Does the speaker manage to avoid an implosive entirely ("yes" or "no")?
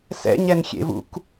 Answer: yes